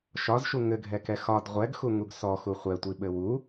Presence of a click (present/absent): absent